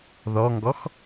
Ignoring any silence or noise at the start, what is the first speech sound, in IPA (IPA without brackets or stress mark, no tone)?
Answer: ð